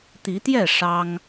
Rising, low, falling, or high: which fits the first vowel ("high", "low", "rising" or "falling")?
rising